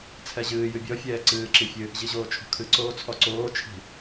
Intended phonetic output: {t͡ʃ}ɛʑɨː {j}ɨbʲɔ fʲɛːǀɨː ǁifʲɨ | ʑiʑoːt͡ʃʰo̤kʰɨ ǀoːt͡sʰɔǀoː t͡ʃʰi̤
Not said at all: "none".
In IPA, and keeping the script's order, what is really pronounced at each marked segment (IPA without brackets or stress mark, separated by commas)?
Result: t͡sʰ, j